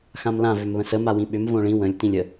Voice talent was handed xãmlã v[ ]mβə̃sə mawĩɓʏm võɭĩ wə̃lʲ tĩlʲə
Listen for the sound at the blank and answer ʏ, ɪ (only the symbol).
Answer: ʏ